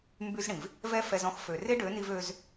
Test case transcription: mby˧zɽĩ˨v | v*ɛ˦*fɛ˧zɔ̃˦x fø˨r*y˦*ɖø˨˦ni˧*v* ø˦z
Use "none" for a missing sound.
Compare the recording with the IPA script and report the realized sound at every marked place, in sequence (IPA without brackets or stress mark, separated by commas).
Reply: ɛ˦, e˦, v